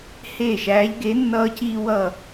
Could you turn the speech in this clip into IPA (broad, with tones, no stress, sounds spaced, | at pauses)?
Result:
h eː˥˨ ʃ æː˧˥ ʎ ɡ e˧˥ nː ʌː˥ c iː˥ w ʌ˥˨